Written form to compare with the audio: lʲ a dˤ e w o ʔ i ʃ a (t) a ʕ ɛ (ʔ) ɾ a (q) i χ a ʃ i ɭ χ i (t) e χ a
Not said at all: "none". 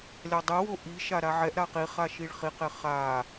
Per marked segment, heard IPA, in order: ɾ, ʔ, q, q

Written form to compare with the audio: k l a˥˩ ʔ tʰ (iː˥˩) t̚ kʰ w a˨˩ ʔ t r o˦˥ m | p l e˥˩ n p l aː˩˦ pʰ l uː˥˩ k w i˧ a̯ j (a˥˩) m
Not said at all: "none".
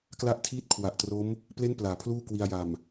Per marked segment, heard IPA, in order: iː˥˩, a˨˩

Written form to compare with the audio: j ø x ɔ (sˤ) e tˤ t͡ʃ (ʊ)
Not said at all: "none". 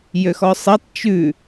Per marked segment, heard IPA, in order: sˤ, ʉ

